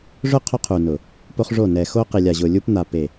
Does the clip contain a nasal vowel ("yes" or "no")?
no